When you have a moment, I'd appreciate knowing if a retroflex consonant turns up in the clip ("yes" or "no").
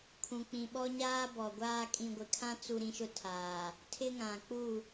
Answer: no